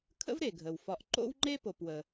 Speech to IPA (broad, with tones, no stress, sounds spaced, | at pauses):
kʰ ə̰˥ v ɾ e˩ ɡʱ ə˩ w f ɒ˨ ʔ ǃ o̰˥ w ŋ͡ǃ e˥ p o˨ p w ə˨